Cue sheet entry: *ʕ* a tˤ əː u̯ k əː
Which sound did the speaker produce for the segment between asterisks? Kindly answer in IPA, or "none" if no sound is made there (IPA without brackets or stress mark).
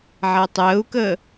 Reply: ʕ